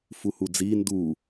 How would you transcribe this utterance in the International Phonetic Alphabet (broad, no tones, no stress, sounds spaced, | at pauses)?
f u h u d͡z i n d u